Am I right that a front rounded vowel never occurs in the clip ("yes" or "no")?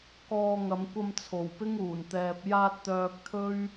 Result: no